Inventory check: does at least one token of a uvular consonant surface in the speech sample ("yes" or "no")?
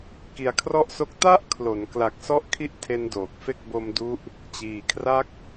no